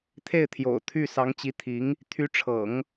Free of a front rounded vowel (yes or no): no